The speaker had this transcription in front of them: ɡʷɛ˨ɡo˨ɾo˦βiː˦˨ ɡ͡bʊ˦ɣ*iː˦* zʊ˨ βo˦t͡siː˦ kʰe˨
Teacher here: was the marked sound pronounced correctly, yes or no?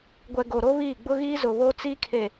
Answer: yes